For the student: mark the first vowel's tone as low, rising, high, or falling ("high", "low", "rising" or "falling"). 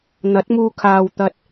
rising